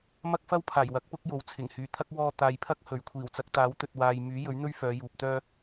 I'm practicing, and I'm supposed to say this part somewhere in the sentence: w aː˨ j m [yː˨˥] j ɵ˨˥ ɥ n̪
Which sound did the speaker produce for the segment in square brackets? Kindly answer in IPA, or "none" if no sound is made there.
yː˨˥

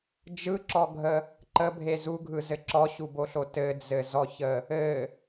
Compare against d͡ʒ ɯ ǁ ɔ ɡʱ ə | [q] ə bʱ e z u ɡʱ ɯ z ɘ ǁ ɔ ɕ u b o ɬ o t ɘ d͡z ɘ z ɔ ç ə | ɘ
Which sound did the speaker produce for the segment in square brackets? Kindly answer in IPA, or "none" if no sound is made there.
ǃ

